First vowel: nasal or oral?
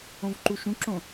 nasal